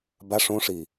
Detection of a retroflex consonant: present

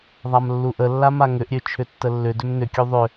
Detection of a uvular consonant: absent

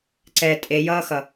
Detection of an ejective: present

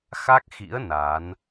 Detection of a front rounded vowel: absent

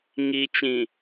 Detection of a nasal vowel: present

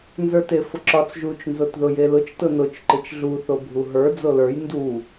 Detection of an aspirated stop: absent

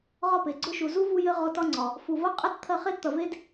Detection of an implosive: absent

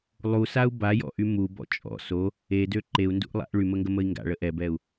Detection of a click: present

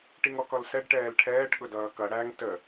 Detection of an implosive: present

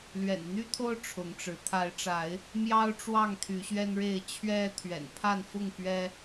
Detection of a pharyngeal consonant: absent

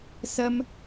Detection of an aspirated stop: absent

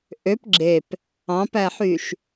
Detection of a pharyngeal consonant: present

